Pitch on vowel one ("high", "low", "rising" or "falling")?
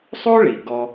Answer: high